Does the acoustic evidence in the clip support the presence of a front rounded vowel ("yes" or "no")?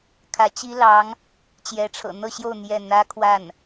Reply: no